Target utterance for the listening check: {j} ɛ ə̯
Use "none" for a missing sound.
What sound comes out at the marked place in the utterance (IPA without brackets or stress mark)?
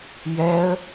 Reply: j